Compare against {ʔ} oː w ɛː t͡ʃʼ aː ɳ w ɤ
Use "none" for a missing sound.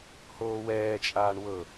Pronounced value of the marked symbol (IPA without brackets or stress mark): h